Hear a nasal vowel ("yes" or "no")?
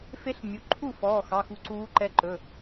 no